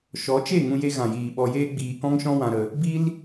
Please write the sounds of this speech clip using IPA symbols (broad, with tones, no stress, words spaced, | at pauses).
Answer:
ʃɔ˨˦t͡ʃe˦˨ ŋũ˧je˧ɣã˨jiː˨ ɓɔ˧jeː˦ɡ͡biː˧ kɔ̃˦ŋʃɔ̃˦wã˧ɾə˧ | bi˦l